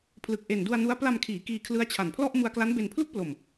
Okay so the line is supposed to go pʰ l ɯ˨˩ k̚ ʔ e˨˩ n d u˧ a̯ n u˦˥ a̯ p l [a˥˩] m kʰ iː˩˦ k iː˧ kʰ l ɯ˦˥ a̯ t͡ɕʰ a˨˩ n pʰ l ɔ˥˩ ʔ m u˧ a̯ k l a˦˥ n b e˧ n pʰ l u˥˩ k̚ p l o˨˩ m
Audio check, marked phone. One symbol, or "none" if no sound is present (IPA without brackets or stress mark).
a˧